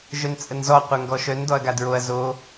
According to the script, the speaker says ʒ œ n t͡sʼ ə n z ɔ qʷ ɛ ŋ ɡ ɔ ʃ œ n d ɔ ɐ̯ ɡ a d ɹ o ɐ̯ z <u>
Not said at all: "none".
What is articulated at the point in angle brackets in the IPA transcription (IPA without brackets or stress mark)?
o